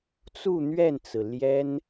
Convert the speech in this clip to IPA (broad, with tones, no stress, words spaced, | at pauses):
t͡su˥˧ n̪ɥɛ˥˩nt͡sɹ̩˩ ljɛ˥n